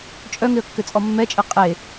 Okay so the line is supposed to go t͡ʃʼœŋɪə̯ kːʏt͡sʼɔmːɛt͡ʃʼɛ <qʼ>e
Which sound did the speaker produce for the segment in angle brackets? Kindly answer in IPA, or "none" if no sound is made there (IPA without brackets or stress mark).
qʼ